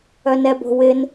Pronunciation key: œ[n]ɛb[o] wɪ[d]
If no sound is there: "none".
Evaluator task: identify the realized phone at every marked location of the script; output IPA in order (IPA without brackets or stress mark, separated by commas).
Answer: n, o̤, n